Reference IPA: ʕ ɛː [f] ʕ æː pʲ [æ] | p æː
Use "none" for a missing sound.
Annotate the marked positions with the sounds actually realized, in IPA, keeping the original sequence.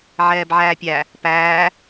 b, æ

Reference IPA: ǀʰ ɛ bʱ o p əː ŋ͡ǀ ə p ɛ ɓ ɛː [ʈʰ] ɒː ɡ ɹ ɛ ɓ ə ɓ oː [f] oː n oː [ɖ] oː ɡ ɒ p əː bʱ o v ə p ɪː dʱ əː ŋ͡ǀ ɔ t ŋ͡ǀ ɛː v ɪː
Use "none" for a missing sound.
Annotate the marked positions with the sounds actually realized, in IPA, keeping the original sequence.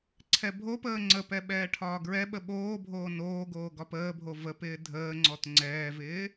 ʈʰ, bʱ, ɡ

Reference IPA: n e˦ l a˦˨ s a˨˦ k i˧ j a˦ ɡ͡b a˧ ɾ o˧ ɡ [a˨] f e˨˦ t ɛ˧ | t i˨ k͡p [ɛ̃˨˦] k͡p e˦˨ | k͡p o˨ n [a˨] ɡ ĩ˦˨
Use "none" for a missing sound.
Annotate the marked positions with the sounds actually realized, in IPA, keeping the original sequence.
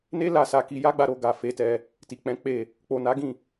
a˨, ɛ̃˨˦, a˨˦

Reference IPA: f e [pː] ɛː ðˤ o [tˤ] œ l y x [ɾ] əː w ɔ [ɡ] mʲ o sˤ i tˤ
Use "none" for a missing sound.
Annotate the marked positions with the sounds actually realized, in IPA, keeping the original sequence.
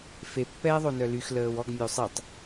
pː, n, l, ɡ

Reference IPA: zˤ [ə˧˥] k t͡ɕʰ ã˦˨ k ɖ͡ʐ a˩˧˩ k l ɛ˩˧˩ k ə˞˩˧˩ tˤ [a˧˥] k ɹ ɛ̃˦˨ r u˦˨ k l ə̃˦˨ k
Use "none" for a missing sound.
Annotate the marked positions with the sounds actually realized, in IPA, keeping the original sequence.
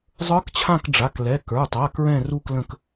ə˞˧˥, a˩˧˩

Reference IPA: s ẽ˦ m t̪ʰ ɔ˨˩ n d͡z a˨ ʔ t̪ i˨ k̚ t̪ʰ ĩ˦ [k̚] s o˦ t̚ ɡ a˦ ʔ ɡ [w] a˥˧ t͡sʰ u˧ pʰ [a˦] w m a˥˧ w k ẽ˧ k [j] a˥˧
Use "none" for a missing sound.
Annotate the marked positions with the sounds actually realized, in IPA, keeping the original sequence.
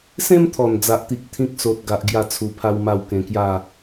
k̚, j, a˦, j

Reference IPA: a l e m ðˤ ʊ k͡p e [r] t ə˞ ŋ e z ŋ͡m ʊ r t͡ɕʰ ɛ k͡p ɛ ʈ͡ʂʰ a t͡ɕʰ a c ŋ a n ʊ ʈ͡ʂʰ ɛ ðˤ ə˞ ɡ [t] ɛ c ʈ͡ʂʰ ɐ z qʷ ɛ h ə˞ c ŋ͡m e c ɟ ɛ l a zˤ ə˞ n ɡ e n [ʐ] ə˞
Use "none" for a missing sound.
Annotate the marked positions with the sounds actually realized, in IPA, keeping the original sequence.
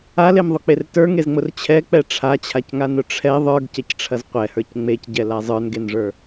r, c, ʐ

